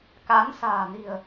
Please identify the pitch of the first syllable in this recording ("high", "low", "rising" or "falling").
rising